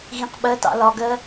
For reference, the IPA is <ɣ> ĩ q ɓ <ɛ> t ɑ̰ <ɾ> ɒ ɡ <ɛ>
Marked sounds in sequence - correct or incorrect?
correct, incorrect: ɜ, incorrect: l, incorrect: ɜ

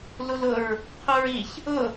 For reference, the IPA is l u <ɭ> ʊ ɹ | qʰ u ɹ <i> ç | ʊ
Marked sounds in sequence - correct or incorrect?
incorrect: l, correct

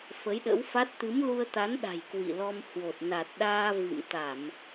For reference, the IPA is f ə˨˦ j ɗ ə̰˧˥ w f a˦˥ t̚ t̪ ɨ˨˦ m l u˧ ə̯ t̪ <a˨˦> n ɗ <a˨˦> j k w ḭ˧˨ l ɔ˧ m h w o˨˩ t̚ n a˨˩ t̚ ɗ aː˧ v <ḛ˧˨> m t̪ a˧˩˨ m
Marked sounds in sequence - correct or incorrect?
correct, incorrect: a̤˨˩, incorrect: ḭ˧˨

